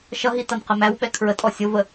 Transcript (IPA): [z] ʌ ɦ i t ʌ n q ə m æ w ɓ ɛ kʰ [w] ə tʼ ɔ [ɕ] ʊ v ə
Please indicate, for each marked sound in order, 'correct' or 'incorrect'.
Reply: incorrect, incorrect, incorrect

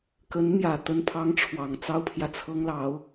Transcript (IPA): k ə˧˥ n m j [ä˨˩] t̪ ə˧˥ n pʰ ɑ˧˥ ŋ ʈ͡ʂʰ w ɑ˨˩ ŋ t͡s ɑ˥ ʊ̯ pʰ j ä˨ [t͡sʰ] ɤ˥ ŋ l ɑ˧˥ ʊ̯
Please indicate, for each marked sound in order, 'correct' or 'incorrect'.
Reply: correct, correct

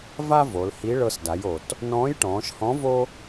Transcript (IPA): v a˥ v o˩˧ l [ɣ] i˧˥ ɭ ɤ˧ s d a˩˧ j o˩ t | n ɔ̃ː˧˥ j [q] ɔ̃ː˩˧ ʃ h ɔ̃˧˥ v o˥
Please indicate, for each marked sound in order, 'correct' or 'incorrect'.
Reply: incorrect, incorrect

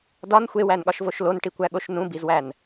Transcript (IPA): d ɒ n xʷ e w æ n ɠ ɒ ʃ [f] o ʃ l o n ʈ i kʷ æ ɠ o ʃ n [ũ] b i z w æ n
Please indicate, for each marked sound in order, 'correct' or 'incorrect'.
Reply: incorrect, correct

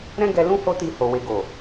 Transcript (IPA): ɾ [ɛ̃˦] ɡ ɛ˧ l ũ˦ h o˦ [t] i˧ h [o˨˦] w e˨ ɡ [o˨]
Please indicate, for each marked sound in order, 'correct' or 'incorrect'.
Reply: correct, correct, incorrect, correct

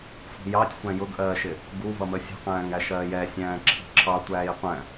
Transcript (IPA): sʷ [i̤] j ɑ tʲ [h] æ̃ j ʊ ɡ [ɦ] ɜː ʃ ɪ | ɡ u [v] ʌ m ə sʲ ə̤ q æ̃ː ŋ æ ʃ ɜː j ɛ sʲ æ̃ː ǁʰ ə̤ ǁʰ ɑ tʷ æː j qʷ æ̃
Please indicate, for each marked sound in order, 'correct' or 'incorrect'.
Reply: correct, incorrect, incorrect, correct

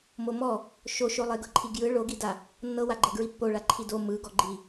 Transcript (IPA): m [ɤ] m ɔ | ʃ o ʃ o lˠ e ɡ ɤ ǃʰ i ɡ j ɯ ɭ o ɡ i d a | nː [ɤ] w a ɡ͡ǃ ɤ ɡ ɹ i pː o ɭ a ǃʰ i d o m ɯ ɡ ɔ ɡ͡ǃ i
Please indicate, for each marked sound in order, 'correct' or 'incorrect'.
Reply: incorrect, correct

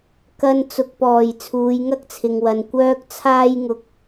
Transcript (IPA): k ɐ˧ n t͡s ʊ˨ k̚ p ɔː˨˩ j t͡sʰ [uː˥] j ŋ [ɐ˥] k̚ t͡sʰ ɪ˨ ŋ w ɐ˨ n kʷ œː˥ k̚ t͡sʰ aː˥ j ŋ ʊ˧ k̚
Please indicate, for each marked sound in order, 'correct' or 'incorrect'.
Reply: incorrect, correct

